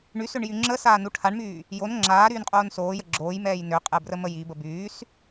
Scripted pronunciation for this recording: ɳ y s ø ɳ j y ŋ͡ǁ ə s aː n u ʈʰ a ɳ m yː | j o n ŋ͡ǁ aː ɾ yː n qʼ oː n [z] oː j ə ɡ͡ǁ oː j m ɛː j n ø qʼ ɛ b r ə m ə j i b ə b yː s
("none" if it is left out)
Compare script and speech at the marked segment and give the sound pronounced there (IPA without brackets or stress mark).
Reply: s